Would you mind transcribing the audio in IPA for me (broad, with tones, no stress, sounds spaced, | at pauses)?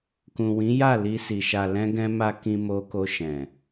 k ũ˨ w ĩ˨˦ j a˦˨ l i˧ s i˨ ʃ a˨ l ɛ̃˧ ɡ ɛ̃˧ m a˧ k ĩ˧ m o˧ k o˧ ʃ ɛ̃˨